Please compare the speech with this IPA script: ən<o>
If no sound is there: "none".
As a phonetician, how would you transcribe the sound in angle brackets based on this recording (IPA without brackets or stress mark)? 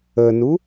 u